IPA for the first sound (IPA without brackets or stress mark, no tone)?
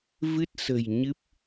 v